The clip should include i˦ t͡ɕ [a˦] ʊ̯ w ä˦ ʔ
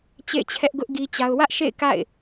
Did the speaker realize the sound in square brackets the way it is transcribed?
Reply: yes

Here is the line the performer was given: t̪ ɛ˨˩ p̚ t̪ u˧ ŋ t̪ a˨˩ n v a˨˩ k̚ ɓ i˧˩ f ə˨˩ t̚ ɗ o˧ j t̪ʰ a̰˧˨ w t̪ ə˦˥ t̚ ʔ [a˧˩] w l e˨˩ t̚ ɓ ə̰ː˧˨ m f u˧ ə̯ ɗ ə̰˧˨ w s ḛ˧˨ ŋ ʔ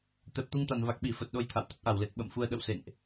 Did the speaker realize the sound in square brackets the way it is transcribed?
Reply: yes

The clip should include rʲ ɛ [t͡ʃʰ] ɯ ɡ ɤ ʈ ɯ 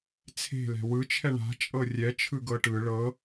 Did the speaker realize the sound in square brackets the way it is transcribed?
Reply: yes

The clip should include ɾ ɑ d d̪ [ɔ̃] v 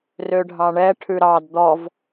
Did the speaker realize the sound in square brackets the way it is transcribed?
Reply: no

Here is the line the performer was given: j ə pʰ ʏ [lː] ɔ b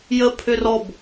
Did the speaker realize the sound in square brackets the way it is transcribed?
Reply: no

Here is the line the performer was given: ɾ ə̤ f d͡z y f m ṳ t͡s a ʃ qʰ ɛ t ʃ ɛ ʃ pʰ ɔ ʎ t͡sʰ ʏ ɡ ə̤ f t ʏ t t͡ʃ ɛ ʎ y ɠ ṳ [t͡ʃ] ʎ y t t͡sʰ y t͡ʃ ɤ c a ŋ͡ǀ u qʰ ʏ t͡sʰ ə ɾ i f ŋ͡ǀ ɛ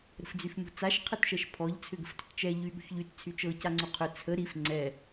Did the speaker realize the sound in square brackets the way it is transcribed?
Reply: no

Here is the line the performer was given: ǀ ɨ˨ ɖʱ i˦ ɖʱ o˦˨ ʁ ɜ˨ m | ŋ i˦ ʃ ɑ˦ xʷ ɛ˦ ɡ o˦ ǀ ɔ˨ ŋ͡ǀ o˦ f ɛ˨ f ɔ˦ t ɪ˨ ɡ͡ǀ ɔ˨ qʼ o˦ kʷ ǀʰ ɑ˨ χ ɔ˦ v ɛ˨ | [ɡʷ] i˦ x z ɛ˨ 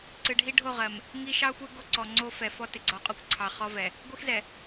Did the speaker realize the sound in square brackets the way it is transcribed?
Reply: yes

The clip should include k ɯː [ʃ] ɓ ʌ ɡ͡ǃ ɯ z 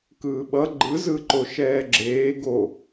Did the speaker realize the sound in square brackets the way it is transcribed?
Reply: no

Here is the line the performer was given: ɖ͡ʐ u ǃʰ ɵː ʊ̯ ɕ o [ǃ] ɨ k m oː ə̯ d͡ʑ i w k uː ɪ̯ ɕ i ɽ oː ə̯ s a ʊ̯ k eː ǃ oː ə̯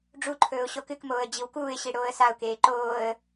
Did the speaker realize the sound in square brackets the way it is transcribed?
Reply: no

